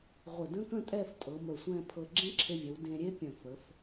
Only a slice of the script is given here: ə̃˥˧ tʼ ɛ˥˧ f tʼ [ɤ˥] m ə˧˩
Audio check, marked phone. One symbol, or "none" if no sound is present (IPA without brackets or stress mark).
ɤ˩˧